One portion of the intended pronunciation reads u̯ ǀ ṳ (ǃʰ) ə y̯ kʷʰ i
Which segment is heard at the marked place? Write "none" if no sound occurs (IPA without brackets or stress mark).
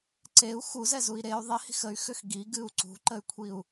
ǃ